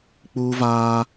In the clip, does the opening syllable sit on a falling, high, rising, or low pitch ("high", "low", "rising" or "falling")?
high